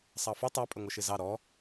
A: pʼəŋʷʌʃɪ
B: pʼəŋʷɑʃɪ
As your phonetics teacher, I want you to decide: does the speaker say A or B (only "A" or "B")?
A